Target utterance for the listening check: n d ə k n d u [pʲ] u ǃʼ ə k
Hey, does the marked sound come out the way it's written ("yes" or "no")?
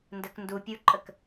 yes